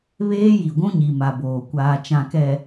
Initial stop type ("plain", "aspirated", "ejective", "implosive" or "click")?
plain